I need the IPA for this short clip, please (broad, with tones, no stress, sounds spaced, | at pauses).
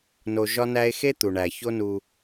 n o˧ ʒ ɒ˥ n æ˥ e̯ x e˥ t̪ u˩ ɳ æ˩ ç o˥ n u˧